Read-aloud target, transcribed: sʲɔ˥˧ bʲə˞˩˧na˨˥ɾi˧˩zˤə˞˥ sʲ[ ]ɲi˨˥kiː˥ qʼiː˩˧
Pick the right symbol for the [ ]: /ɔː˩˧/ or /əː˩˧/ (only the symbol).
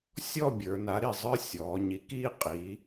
ɔː˩˧